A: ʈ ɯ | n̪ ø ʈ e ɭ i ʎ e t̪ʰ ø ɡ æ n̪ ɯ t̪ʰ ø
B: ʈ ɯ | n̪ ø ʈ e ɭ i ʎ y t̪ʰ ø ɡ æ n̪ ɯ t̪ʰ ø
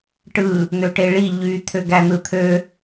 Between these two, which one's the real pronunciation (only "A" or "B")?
B